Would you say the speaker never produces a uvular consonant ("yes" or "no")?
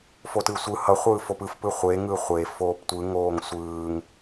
no